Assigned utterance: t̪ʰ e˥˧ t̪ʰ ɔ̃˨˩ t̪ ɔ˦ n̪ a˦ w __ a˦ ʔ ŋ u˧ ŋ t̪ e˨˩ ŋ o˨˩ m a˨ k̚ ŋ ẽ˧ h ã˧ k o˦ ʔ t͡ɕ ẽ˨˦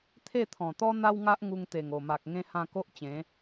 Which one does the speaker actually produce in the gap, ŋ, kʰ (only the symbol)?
ŋ